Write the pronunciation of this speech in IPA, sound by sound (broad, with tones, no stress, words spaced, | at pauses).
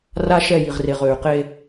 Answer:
ra˦ʃɛ˦˨ji˨ʁre˨ʁ ø˨y̯qe˦